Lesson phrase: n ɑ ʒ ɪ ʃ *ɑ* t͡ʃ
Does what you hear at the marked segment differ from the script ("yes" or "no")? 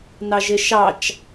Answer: no